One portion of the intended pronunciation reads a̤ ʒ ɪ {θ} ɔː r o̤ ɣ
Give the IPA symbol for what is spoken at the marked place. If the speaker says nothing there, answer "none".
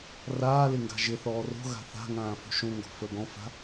θ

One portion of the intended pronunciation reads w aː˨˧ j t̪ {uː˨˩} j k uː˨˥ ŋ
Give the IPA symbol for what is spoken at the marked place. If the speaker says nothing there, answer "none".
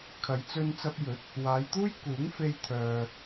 uː˥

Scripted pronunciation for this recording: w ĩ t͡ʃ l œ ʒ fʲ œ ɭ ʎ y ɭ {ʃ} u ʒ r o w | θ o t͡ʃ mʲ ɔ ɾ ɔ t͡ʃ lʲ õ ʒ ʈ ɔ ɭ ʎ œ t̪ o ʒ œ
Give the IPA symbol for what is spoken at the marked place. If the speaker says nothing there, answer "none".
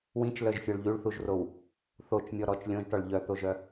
θ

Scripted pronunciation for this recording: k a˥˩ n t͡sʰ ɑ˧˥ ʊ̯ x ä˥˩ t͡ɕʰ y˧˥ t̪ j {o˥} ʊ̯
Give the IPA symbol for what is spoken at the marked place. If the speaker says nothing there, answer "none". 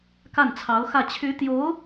o˧˥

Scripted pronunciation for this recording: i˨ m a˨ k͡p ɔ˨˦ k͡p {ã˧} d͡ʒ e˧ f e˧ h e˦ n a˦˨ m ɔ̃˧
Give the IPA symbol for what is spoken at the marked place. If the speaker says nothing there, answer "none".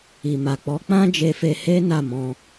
ã˦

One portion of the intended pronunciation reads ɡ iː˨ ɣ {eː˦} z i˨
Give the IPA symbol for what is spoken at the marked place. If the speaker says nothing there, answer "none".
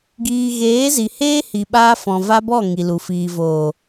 eː˨˦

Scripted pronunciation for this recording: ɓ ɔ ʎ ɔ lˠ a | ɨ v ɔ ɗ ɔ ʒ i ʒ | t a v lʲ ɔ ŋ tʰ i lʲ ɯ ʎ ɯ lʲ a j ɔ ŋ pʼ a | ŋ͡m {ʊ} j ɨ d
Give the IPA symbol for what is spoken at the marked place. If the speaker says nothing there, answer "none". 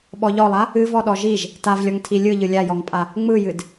ɯ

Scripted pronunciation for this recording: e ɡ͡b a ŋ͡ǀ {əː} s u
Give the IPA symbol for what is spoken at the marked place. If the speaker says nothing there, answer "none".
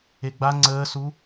əː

